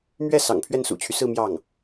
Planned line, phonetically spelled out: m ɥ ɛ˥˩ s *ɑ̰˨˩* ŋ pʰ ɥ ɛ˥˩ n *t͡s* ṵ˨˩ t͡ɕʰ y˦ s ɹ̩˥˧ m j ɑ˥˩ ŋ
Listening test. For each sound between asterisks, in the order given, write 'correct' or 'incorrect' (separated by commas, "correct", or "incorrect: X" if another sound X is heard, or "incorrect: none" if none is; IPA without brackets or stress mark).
correct, incorrect: s